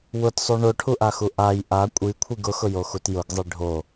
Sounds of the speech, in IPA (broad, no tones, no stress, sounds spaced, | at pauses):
w ʊ t sˤ o ɳ o ʈʰ u ʔ a x u ʔ a j ʔ a kʷʼ i kʷʰ i ɡ ʊ x ʊ j o x u t j ʊ ɡ zˤ i ɖʱ o